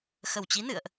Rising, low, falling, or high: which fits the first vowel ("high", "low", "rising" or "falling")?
low